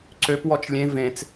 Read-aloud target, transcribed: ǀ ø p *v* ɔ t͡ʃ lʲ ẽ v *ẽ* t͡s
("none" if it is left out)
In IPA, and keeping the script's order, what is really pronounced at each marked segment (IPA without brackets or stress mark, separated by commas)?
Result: w, ẽ